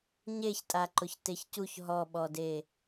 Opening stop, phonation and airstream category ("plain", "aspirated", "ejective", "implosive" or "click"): ejective